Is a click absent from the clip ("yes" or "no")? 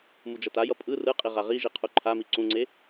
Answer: no